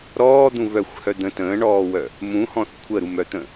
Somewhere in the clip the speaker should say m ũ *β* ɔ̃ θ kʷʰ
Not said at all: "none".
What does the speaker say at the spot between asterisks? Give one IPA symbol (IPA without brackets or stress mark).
h